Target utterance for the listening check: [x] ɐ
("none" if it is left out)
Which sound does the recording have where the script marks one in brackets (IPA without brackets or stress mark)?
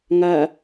ŋ